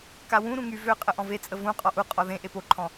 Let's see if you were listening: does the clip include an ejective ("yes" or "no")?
yes